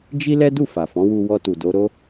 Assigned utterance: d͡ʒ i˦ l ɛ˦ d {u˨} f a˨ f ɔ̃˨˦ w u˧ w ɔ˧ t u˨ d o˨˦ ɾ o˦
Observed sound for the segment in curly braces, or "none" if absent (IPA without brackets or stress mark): u˦˨